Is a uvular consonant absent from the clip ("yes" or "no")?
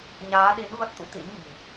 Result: yes